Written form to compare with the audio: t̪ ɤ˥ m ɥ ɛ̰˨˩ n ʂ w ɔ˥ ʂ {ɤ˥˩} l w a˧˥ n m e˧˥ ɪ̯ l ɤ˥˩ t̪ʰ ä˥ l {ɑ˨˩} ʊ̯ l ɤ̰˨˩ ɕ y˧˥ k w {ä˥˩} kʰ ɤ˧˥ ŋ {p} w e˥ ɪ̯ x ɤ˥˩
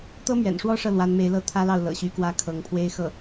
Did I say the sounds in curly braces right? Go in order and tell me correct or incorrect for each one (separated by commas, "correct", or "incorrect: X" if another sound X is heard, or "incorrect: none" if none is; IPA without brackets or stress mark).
correct, incorrect: ɑ˥˩, correct, incorrect: pʰ